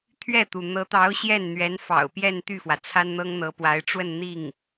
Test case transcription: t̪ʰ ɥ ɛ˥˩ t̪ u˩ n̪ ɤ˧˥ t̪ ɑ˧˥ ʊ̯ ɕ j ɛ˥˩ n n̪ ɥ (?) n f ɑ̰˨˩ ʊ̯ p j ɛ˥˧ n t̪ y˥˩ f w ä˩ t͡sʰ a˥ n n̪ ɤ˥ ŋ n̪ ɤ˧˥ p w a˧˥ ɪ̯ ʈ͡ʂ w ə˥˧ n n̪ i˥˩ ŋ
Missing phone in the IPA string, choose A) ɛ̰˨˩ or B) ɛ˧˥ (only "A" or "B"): B